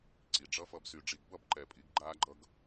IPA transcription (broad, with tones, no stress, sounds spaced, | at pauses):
ǀ i˨ ɖ͡ʐ ʌ˦ f ʌ˧ b s y˨ ɖ͡ʐ i˨ ɡ b ʌ˦˨ b ǃ ɛ˨ pʼ i˨˦ ɡ ɡ͡ǃ aː˦ ɡ͡ǃ ʌ˦ ɡ